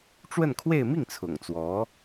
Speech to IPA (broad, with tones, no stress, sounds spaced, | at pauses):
ʈ͡ʂ w ə˥˧ n kʰ w e˥˧ ɪ̯ m i˥˩ ŋ t͡sʰ ʊ̰˨˩ ŋ t͡s w ɔ˧˥